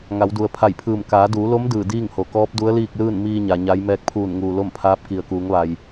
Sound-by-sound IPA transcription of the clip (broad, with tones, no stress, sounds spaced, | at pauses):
ŋ a˩˧ w d u˩ ə̯ pʰ a˧˩ j pʰ ɯː˧˩ m k aː˩˧ d uː˩˧ l o˧˥ m d ɯː˧˩ d iː˥˨ ŋ h o˩ k ɔː˧˥ p̚ d u˧˥ ə̯ l iː˥˨ k̚ l ɯː˥˨ n m iː˧ ɲ a˩ ɲ a˧˥ j m ɛː˧ k̚ pʰ uː˧˩ n ŋ uː˩ l o˥˨ m pʰ aː˧˥ p̚ k i˩ ə̯ k uː˩˧ ŋ ʋ a˩ j